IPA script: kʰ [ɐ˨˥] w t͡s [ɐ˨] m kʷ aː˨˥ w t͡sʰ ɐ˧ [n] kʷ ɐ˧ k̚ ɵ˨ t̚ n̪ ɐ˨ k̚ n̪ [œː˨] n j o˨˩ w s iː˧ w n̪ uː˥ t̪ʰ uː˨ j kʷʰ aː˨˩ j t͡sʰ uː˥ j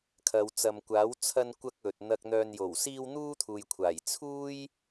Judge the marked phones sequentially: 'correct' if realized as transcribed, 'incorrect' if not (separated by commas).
incorrect, correct, correct, correct